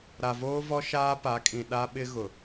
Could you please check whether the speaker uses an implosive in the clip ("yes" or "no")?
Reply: yes